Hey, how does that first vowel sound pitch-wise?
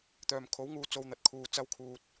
low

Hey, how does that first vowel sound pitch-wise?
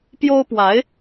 high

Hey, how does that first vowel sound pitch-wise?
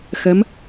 rising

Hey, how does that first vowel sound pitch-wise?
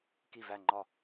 falling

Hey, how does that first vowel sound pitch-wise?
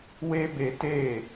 high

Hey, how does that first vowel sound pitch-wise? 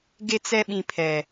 high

